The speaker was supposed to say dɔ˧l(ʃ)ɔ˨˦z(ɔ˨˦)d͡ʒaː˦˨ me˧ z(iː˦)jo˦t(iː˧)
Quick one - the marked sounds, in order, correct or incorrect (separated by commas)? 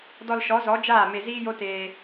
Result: correct, correct, correct, incorrect